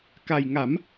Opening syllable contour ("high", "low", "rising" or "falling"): low